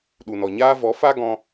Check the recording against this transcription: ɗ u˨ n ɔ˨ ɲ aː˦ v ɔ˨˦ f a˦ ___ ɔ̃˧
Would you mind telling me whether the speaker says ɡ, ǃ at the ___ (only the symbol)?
ɡ